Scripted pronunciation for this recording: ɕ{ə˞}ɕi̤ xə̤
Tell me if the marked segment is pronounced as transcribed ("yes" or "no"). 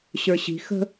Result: yes